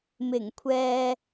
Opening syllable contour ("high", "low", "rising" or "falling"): low